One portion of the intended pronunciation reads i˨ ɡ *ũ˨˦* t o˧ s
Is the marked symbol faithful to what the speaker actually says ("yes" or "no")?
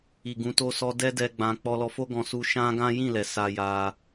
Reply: yes